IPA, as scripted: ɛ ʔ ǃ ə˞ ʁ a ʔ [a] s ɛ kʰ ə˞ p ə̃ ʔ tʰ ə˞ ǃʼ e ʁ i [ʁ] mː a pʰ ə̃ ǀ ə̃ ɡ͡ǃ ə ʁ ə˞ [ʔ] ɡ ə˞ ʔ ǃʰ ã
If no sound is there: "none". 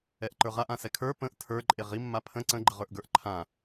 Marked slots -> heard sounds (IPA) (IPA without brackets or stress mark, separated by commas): ã, none, ʔ